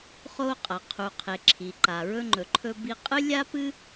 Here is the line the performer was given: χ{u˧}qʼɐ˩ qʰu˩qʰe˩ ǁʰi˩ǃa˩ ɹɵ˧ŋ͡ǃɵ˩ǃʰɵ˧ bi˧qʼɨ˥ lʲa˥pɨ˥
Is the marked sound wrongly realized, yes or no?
yes